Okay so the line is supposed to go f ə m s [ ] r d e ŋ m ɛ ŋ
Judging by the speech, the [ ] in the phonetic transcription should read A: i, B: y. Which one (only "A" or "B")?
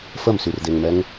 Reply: B